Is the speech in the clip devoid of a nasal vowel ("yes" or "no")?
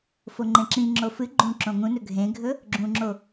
no